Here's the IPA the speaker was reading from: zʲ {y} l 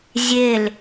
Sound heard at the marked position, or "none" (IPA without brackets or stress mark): e